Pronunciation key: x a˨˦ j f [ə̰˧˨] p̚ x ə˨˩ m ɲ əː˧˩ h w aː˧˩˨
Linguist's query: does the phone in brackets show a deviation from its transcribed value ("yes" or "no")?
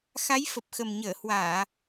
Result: yes